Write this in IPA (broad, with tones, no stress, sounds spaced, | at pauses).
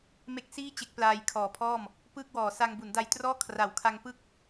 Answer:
m e˦˥ k̚ s iː˥˩ t͡ɕ e˦˥ k̚ p l aː˧ j kʰ ɔː˨˩ pʰ ɔː˥˩ m | p ɯː˥˩ k̚ w ɔː˨˩ s a˧ ŋ b u˩˦ n d a˧ j t r ɔː˥˩ kʰ r a˨˩ w kʰ a˧ ŋ p ɯ˦˥ k̚